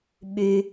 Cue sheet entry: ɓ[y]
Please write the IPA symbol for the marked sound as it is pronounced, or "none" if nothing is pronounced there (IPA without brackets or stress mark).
y